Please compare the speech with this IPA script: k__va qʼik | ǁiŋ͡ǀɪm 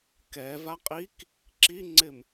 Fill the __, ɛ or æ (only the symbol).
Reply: ɛ